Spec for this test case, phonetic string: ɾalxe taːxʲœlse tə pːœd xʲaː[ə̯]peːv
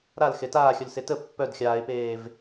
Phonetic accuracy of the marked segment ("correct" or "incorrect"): incorrect